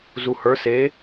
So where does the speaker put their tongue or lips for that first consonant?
tongue tip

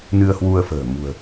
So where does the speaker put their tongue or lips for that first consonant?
tongue tip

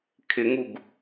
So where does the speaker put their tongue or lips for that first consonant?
velum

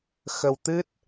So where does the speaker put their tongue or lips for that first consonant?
velum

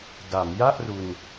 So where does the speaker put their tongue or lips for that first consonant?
tongue tip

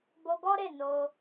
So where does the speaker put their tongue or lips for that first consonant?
lips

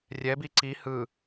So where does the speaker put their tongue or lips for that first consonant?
tongue tip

